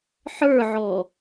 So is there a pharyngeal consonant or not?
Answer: yes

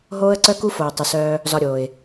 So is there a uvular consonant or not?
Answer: no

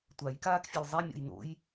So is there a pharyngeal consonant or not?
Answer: no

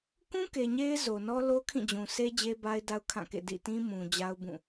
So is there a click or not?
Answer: no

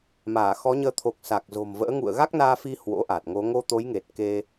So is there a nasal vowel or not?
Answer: no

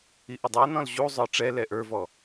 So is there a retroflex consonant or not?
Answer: yes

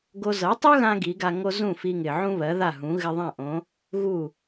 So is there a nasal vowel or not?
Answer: yes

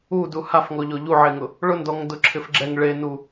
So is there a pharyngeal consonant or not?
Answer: yes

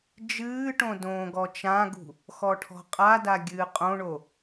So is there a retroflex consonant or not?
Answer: yes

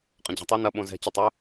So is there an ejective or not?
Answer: yes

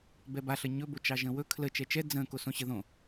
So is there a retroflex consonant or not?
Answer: no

